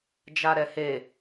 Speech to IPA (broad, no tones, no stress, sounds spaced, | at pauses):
d͡ʒ a ɾ ɛ h e